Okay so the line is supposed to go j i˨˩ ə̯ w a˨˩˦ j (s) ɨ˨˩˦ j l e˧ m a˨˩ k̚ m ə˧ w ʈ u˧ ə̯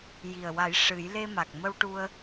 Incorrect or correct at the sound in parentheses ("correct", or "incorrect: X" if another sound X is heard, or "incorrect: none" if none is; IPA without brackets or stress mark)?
incorrect: ʂ